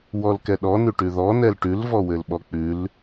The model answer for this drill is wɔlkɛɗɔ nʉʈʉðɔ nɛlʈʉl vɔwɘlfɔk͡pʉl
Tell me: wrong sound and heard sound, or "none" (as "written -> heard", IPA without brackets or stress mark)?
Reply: f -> ɓ